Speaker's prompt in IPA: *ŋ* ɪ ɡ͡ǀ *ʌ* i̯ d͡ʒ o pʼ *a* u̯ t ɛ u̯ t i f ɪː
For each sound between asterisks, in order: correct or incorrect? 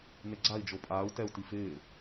incorrect: n, incorrect: a, incorrect: aː

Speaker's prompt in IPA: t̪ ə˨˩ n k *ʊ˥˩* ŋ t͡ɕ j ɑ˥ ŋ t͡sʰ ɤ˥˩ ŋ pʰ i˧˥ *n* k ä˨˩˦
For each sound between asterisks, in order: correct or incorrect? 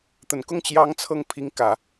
correct, incorrect: ŋ

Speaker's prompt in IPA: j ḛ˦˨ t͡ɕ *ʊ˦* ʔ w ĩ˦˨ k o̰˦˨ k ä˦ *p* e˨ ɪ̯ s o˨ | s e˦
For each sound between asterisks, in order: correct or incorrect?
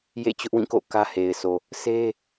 correct, incorrect: h

